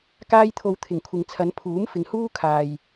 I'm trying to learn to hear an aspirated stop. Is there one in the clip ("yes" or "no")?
yes